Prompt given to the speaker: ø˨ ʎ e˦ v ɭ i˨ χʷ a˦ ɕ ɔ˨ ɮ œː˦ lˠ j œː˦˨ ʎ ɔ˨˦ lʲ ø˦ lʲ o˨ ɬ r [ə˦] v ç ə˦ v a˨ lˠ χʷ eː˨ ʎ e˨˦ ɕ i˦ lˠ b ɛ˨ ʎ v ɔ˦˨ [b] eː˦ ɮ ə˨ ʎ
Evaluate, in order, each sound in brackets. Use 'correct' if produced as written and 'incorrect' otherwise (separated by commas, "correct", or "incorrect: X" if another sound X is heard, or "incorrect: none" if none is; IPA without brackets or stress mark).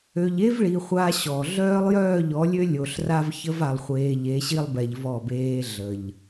incorrect: a˦, correct